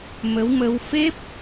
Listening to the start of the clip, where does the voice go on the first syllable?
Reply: rising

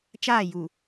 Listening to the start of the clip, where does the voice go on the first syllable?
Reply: falling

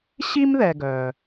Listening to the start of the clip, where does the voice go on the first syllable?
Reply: high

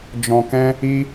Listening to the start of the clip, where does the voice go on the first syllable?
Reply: low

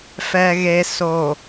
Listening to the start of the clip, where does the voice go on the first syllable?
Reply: low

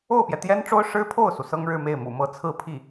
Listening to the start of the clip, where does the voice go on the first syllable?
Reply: falling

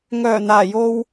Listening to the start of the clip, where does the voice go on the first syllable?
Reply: low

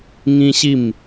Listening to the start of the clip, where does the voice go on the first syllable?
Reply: high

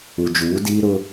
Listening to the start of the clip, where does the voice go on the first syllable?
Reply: low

